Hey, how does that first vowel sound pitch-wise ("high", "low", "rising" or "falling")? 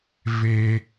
high